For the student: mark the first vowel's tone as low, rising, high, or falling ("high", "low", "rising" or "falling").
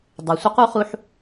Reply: low